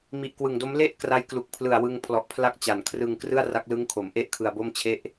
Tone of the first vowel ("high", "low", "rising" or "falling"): low